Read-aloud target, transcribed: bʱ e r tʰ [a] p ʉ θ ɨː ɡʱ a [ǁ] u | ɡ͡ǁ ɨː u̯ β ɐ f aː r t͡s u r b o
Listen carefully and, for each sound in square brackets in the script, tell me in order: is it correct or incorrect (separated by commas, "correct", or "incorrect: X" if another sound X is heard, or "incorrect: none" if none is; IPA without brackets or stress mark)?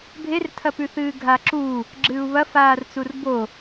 incorrect: ɐ, correct